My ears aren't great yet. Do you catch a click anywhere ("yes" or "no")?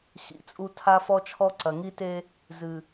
yes